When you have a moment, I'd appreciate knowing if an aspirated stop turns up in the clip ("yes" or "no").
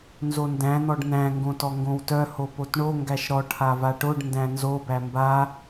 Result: yes